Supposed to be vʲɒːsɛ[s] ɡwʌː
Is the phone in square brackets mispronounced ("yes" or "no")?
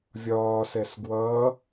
no